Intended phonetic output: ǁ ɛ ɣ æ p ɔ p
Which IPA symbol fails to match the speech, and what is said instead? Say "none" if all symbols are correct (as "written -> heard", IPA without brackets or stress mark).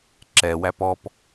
ɣ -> w